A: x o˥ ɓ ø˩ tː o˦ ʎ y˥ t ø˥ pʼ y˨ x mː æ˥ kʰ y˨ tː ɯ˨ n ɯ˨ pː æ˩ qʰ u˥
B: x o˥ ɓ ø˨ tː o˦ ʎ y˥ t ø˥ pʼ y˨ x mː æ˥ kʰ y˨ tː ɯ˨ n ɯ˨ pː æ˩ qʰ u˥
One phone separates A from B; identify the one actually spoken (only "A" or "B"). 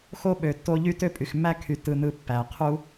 B